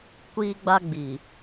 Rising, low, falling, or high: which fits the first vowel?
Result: high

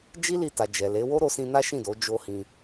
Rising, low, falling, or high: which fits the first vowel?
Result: high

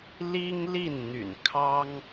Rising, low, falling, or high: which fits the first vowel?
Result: high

